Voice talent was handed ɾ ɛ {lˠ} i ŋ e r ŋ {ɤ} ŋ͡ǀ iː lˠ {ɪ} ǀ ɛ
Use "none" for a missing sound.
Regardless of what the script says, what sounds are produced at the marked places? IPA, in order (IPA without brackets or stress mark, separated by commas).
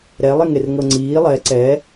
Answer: lˠ, ɤ, ɛ